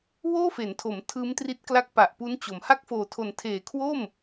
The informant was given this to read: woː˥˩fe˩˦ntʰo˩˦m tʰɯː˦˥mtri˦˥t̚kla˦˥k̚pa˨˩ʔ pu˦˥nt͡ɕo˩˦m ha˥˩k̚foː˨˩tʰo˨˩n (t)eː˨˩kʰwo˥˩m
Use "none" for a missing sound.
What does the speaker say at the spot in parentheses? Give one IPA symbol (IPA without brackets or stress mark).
tʰ